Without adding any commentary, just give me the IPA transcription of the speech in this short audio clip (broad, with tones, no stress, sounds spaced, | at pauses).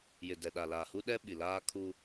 j ɪ˨ d ɛ˨ ɗ a˨ l aː˨ h u˦ ɗ ɛ˦ ɓ i˨ l aː˦ kʰ u˦